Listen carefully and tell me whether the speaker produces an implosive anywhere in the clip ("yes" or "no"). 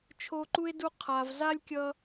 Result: no